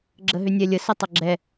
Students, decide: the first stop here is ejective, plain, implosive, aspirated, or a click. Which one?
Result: click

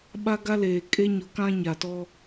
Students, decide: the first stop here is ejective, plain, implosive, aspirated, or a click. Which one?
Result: implosive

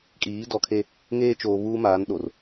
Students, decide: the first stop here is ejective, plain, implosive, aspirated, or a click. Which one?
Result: ejective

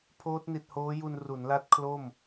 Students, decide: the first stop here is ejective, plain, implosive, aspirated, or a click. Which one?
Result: aspirated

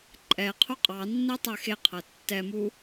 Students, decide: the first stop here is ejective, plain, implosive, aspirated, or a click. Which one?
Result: click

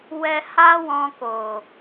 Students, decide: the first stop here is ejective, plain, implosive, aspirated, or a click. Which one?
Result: plain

